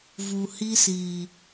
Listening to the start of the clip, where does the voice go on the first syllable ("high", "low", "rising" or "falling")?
low